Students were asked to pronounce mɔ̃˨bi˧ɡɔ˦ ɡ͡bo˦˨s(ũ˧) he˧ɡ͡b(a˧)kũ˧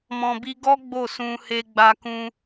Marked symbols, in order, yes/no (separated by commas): yes, yes